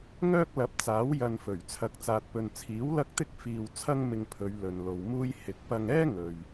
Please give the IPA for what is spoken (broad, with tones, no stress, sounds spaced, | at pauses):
ŋ œː˥ k̚ l ɐ˨˥ p̚ t͡s aː˨˥ w j ɐ˧ n f ɵ˨˩ ɥ t͡sʰ ɐ˨ k̚ t͡s aː˨ t̚ p ɵ˨ n t͡sʰ iː˨˥ w l ɐ˥ k̚ t̪ ɪ˥ k̚ f iː˧ w t͡sʰ ɐ˥ ŋ m ɪ˧ ŋ pʰ ɵ˨˧ ɥ l ɵ˨ n l o˨ w m uː˥ j h ɪ˧ k̚ p ɐ˧ ŋ ɛː˥ ŋ ɵ˨ ɥ